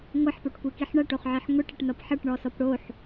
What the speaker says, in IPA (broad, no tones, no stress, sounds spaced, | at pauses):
ŋʷ ɐ ħ p o ʈ kʷ i k i ħ ɳ ɐ ʈ o χ ʕ i ħ ŋʷ i ʈ ʌ ʈ n ʌ p ħ ʌ ʈ ɳ ɔ s ɔ p ɽ o ħ